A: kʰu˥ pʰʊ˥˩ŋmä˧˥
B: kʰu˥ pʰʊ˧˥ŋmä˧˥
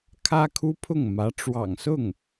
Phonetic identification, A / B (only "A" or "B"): A